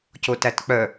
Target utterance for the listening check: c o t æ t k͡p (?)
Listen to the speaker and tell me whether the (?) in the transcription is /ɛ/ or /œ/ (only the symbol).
œ